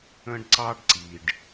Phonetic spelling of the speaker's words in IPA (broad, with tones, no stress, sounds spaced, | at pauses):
ə̃˦ ɖ ǀ ɑ˦ ɖ ǀ i˨ ɖ